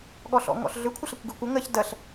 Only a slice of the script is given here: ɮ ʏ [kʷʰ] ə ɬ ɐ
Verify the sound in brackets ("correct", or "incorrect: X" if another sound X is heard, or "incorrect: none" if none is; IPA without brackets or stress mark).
correct